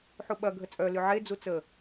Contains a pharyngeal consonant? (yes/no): yes